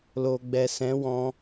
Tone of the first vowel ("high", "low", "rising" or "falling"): low